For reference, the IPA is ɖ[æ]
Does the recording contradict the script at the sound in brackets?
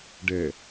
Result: yes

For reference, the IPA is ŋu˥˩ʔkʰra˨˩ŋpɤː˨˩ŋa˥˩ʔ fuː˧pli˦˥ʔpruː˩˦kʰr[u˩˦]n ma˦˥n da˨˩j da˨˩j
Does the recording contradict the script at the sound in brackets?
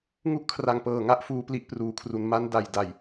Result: no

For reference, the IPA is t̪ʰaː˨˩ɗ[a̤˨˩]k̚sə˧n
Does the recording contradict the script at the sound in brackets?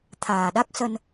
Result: yes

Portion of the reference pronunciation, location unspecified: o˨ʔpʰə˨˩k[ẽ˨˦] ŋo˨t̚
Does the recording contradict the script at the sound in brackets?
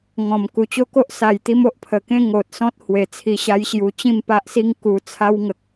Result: yes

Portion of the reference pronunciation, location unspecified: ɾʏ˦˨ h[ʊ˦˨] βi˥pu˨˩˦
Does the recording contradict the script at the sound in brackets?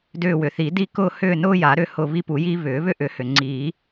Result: no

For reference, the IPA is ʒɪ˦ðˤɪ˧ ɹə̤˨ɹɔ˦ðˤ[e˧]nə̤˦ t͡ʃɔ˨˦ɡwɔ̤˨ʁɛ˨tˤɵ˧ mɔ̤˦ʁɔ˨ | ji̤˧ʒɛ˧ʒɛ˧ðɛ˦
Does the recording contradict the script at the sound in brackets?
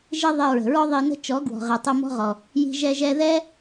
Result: yes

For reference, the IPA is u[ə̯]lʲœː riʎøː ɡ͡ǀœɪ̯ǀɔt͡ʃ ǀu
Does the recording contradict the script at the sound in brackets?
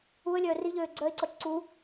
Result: no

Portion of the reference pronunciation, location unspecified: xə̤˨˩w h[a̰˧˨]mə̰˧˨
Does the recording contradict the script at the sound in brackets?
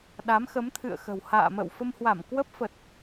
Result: yes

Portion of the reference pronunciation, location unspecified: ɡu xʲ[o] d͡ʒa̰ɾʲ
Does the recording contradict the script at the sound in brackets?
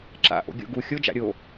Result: no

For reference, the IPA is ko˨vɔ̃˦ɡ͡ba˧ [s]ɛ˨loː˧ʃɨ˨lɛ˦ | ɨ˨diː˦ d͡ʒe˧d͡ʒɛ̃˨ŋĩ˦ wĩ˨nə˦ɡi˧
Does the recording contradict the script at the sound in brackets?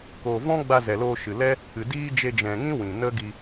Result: yes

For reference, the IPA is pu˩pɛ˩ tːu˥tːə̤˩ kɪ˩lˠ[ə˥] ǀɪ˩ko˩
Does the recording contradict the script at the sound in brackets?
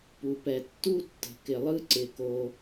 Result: yes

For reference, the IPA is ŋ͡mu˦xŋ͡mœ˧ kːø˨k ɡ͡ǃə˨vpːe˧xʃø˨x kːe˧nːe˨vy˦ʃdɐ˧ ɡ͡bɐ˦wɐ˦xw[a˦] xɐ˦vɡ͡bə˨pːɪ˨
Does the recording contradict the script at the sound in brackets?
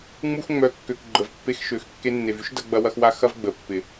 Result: no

